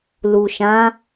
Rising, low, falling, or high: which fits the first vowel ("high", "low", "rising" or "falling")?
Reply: low